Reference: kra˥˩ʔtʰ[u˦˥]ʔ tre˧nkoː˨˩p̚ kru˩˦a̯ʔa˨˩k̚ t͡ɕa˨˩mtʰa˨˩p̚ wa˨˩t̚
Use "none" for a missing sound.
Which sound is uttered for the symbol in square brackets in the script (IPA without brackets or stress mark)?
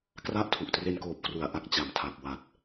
u˨˩